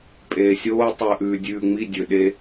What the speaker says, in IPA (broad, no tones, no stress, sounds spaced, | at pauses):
pʼ eː sʲ oː tˤ ʉ ʔ ʉː dʲ ʉː ŋ͡m i dʲ ɵ ɗ e